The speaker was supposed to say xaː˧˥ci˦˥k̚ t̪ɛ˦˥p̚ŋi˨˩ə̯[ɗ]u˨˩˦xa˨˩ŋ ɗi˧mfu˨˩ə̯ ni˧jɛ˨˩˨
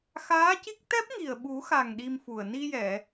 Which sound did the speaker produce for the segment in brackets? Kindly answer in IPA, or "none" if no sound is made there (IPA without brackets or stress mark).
ɓ